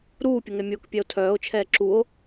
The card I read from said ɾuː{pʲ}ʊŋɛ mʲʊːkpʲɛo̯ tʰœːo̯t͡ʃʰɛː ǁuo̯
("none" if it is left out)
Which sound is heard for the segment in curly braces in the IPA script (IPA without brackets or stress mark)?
pʲ